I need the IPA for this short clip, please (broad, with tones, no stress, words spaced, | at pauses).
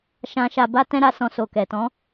ʃã˧ ʃa˨ba˧tɛ̃˧ɾa˨ sɔ̃˧so˨kɛ˨ tɔ̃˨˦